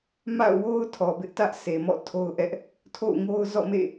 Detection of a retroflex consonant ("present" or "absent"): absent